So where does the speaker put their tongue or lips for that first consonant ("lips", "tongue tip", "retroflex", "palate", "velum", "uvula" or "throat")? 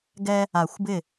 velum